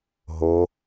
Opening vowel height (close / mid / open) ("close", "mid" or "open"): mid